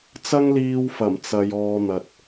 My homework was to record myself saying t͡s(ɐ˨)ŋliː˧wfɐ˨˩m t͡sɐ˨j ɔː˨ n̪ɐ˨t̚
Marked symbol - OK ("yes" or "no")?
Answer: no